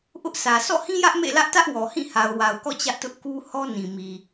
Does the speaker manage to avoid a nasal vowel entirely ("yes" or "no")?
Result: no